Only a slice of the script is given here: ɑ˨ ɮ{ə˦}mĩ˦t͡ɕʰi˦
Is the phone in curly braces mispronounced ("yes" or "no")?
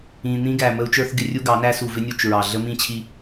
no